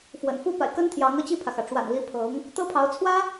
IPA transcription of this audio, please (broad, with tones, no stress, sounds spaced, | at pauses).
f w ə̰˨˩ n f u˥ p a̰˨˩ ɪ̯ k ə˥ n t̪ʰ j ɑ˧˥ ŋ ɤ˥˧ t͡ɕ i˥˩ pʰ ä˩ x ä˩ ʈ͡ʂ w a̰˨˩ n l i˧˥ pʰ ɤ˧˥ ŋ | t̪ ɤ˥ pʰ ɑ˧˥ ʊ̯ t͡sʰ w ä˥